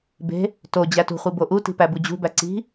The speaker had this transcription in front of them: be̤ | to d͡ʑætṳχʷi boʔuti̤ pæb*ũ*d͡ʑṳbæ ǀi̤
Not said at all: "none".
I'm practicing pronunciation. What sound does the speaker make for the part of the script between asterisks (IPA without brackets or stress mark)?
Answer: u